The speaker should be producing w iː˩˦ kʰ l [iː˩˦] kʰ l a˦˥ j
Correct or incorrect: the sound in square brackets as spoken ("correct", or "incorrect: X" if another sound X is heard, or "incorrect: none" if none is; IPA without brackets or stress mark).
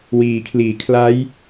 correct